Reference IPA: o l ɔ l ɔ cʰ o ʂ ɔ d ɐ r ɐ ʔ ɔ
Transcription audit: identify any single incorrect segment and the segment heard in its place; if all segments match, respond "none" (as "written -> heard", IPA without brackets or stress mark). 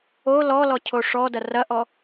none